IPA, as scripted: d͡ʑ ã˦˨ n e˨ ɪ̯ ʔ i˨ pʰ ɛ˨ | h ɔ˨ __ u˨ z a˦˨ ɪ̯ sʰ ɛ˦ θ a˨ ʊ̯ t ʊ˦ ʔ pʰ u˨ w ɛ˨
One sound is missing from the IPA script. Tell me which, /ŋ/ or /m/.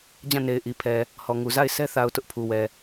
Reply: ŋ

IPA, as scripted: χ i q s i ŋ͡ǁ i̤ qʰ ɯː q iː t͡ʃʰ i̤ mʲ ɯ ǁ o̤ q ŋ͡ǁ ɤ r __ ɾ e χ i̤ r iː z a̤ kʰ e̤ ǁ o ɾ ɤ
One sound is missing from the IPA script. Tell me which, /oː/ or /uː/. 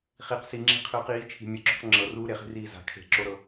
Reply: uː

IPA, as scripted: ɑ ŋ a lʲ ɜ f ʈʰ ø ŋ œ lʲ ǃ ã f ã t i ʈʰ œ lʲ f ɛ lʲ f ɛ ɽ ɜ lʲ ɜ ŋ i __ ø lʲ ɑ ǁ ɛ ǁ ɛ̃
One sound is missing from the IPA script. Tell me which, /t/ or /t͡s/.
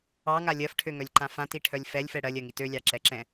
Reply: t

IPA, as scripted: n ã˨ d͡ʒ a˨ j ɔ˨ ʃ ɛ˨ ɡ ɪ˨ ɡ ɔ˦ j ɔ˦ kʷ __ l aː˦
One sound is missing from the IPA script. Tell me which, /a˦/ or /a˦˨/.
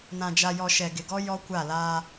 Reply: a˦˨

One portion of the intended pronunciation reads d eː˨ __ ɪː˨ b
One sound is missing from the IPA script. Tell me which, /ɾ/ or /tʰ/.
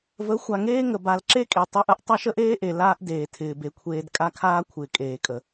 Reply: tʰ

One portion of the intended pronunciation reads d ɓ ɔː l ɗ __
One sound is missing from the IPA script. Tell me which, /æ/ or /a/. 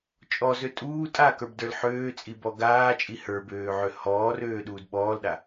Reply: a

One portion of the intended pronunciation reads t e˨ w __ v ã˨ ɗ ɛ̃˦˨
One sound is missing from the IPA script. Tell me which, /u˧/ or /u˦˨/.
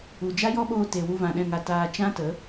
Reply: u˧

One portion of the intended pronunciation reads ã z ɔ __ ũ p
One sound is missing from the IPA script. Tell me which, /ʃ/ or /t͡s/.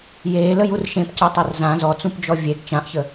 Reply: t͡s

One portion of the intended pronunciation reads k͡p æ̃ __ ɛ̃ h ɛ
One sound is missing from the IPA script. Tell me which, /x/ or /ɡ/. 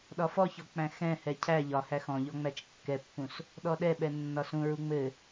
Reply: x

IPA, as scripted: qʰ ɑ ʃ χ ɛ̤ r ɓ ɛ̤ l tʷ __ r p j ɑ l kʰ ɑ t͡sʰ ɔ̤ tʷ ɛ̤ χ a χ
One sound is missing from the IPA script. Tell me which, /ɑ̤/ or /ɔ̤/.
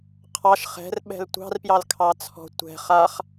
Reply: ɑ̤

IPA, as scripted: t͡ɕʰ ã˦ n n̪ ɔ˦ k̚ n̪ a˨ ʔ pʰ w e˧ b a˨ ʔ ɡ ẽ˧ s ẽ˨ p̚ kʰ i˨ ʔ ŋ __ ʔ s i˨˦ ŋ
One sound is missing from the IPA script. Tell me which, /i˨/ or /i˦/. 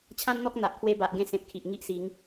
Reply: i˦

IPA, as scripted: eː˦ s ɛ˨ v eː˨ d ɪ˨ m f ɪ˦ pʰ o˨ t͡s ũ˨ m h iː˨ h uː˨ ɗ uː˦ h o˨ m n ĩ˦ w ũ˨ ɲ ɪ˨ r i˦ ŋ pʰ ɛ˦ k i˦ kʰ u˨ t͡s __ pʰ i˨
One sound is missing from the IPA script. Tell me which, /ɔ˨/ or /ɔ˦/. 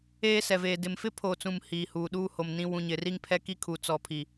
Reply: ɔ˨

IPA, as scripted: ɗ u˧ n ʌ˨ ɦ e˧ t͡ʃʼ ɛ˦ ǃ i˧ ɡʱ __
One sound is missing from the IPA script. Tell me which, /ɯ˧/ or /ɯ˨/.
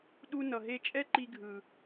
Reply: ɯ˨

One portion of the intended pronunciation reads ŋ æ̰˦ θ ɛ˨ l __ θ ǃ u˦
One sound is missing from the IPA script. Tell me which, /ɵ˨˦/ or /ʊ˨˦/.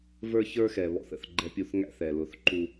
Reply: ʊ˨˦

